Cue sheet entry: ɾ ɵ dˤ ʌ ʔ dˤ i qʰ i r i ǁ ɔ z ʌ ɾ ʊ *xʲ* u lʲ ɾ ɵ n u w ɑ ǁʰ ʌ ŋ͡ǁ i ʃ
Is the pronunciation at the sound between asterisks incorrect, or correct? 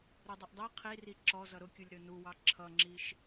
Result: incorrect: kʲ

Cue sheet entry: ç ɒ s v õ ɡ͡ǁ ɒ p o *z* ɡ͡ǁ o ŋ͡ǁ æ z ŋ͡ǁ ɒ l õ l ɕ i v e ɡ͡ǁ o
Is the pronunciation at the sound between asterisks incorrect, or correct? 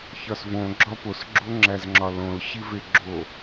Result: incorrect: s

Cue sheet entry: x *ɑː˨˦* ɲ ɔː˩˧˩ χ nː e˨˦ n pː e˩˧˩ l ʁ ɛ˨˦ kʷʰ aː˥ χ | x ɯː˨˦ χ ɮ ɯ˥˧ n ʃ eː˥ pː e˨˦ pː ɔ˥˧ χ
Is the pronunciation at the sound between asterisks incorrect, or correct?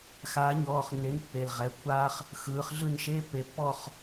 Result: incorrect: aː˨˦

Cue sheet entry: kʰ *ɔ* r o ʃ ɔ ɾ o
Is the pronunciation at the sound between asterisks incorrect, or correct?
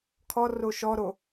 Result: correct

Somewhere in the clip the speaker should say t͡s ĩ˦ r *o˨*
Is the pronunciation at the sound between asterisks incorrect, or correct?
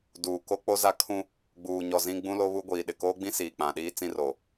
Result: correct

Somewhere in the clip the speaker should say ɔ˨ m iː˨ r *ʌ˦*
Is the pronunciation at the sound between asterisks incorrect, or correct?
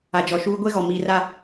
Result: incorrect: a˦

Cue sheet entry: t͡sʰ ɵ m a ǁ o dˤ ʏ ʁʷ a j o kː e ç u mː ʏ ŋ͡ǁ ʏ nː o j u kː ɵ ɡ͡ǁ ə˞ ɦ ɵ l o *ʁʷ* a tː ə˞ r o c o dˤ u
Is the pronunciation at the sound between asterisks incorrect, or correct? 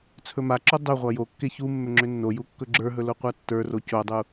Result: incorrect: qʷ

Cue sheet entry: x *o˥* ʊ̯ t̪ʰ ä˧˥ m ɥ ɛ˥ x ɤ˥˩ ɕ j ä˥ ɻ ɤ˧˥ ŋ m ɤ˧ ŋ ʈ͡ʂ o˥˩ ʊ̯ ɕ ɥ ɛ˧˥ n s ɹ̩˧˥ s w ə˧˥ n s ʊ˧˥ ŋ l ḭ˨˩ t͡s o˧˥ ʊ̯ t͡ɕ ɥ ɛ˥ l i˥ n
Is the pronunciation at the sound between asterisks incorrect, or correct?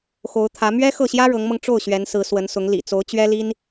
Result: incorrect: o˧˥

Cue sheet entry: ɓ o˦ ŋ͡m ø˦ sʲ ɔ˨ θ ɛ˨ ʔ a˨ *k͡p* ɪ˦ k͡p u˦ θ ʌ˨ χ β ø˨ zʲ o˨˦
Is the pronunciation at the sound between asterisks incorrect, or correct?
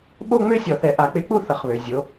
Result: correct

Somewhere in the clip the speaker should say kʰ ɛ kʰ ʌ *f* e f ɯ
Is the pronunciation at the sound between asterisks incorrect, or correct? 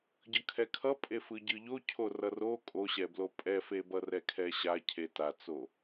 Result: incorrect: pʼ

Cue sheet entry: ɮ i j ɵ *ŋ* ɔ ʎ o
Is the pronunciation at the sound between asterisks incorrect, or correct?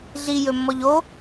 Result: incorrect: mː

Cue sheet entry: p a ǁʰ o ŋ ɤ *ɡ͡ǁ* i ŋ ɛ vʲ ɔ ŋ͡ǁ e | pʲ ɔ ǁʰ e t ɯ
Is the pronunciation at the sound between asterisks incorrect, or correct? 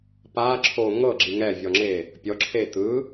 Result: correct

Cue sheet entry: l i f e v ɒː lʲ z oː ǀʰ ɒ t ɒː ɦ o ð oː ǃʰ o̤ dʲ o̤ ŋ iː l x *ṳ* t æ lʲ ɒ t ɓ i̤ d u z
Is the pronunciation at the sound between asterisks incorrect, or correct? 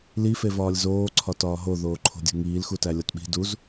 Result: incorrect: u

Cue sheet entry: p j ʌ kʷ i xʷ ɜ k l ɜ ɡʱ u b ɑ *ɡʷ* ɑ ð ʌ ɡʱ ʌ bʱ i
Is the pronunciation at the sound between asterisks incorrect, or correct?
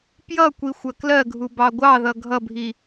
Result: correct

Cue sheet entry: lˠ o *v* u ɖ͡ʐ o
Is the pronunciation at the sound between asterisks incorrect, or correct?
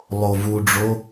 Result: correct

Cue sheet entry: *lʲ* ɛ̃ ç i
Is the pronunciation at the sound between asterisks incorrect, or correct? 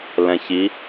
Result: incorrect: l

